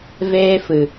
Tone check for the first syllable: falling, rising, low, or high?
high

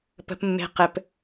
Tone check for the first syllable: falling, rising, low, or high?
high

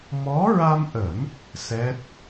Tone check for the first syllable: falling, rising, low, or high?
rising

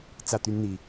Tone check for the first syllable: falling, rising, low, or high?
falling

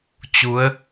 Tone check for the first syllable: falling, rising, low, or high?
rising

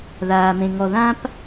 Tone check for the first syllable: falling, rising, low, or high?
low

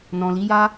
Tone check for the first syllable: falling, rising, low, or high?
low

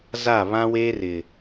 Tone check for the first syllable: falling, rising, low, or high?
falling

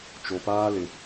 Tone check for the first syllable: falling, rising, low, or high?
low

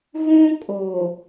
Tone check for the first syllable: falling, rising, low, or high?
high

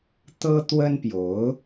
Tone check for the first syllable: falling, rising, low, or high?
high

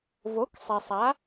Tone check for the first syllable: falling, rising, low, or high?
rising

